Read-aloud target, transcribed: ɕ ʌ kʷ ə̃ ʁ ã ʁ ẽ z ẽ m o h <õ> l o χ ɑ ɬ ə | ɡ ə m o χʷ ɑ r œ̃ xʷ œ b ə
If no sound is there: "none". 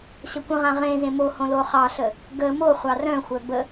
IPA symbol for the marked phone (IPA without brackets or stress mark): õ